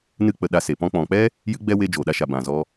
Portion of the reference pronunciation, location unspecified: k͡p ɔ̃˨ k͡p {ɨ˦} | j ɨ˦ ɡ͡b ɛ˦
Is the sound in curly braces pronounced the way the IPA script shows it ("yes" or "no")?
no